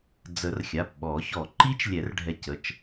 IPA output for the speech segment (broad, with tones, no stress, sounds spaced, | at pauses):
d͡z ə˨˩˦ r xʲ a˩˧˩ p ɓ ɔ˨˩˦ ç ɔ˨˩˦ ǃ i˦˥ t͡ʃ lʲ ɛ˨˩˦ r ɖʱ ɛ˧ c ə˩˧˩ t͡ʃ